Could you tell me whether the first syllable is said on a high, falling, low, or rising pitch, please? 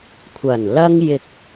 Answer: low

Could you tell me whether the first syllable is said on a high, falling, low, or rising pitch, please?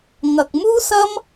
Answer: low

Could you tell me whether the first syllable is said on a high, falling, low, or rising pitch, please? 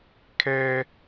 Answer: high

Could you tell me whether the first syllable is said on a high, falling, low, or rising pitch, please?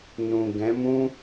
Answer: low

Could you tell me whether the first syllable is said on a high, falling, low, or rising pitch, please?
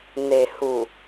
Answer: low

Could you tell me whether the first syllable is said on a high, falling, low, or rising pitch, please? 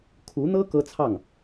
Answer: rising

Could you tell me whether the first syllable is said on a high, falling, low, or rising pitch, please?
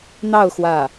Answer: falling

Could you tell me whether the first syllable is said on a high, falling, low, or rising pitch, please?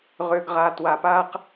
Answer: low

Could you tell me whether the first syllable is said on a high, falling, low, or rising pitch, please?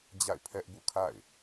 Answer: falling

